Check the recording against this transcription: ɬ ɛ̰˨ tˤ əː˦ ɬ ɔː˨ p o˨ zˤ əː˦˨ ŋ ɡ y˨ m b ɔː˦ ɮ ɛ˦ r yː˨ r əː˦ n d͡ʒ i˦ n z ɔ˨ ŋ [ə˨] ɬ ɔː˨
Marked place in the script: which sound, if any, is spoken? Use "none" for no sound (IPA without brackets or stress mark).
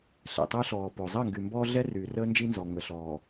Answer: ə˨